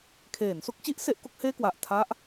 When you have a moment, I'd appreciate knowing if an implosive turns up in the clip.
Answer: no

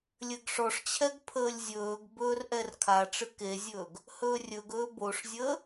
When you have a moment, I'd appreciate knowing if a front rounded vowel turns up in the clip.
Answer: no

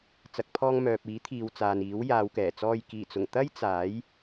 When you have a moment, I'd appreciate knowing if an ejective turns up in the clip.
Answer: no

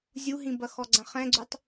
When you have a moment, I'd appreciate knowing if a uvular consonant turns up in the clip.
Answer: yes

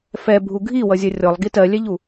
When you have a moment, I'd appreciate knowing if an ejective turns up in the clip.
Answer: no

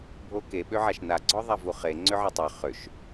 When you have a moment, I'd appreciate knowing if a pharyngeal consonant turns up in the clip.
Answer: yes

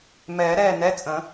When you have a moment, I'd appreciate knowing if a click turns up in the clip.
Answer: no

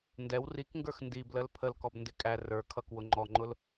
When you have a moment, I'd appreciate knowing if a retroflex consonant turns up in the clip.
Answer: no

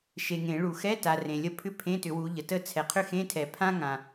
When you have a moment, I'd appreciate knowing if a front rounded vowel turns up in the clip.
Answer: yes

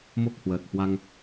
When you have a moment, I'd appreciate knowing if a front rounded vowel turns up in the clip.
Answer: no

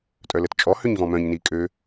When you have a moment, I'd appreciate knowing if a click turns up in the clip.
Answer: no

